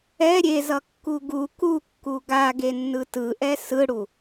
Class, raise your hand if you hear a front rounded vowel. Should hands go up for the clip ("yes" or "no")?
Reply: no